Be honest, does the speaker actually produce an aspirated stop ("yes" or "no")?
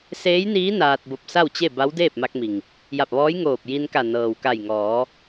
no